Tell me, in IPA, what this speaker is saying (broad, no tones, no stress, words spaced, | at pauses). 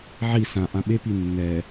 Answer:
ʕi sã ʔãɓepi nːɛ